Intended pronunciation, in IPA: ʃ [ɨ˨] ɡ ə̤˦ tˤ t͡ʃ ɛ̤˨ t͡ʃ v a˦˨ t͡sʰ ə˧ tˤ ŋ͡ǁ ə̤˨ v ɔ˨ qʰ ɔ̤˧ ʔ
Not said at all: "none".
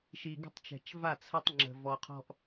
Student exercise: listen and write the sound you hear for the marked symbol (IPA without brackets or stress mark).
i˨